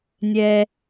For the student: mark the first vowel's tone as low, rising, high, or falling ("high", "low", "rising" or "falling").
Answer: low